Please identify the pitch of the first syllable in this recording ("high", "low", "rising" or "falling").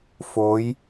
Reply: rising